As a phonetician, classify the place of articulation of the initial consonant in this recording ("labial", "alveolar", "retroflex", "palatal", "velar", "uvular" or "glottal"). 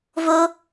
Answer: labial